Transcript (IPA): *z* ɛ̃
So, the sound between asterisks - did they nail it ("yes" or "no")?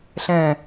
no